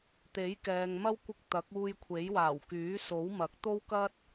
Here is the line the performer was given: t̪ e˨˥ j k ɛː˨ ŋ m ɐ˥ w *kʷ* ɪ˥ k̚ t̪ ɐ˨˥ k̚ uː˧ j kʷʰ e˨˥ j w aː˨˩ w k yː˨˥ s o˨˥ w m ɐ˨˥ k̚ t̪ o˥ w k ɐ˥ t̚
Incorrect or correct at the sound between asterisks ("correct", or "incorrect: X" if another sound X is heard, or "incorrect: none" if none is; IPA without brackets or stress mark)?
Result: correct